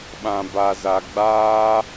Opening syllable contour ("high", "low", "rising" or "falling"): low